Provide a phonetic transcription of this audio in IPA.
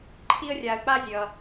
ǃʰ i˦ ə̯ rʲ a˧ ə̯ k͡p a˦ zʲ ʌ˧

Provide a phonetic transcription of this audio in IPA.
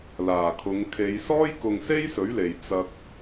l aː˨˩ kʰ ʊ˨˧ ŋ kʰ e˨˧ j s ɔː˥ j k ʊ˧ ŋ s e˥ j s ɵ˨˥ ɥ l e˨ j t͡s ɐ˧ k̚

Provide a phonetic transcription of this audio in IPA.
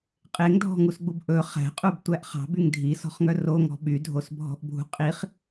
qʼ e ŋ dʱ ɔ̤ ŋ u s ɡ͡b u b ʔ ɵ χ æ̤ qʼ u b tʷ æ ʔ χ ɑ̤ b y ŋ dʱ i s ɔ̤ χ ŋ œ r o ŋ ɔ̤ ɓ y dʱ o s bʱ ɔ̤ ʔ bʱ ṳ qʼ i χ

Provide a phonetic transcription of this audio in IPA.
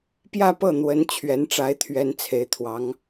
p j ä˥˧ p ɤ˥˩ n̪ w ə˧˥ n t͡ɕʰ ɥ ɛ˧˥ n ʈ͡ʂ a˧˥ ɪ̯ t̪ʰ ɥ ɛ˧˥ n t͡sʰ e˧˥ ɪ̯ t̪ʰ w ɑ˧˥ ŋ

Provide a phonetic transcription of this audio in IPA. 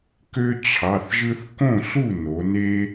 k ø˦ t͡ɕʰ ɑ˩˧˩ θ ʒ ɯ˦ θ k õ˥˩ ɬ u˥˩ n o˩˧ n e˦

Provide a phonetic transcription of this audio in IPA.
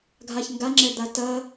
ɡʱ a ç ŋ ɡ a ŋ͡ǁ ɛ d̪ a t ɐ

